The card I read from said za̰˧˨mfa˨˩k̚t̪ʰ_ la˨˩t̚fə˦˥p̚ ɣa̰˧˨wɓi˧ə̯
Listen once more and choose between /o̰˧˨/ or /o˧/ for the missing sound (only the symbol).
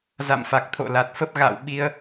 o̰˧˨